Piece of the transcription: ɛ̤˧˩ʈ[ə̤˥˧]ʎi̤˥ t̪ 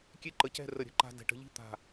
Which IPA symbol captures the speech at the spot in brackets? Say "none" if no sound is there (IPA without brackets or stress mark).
ə̤˥˧